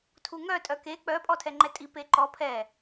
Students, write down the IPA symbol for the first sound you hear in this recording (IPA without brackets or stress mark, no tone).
tʰ